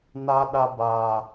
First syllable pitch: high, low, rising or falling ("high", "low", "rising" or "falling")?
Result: high